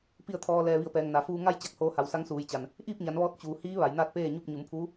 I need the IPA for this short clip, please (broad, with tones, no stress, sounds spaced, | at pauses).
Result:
p i˧˩ ə̯ t̪ʰ ɔː˩ l ɛː˩ ʋ i˧˩ ə̯ p ɛː˩ ŋ n a˩ f uː˧ ŋ a˥˨ j t͡ɕ a˧˩ k̚ h oː˧ h a˩˧ w s a˧˥ ŋ s uː˩˧ j t͡ɕ a˩ n | ʔ iː˥˨ p̚ ɲ a˩˧ n ʋ ɔː˧ t̚ t͡ɕ uː˩ h iː˧˥ ʋ a˩˧ j n aː˥˨ t̚ p eː˥˨ ɲ u˥˨ p̚ ɲ u˩˧ m pʰ uː˧˥